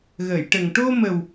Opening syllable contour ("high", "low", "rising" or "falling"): low